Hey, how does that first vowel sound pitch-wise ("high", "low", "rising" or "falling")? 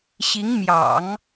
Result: rising